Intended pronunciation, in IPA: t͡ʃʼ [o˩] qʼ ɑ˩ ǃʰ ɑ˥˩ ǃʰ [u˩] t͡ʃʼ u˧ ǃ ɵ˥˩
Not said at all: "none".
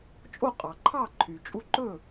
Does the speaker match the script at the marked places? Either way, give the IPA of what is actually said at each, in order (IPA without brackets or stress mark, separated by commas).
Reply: o˥˩, y˩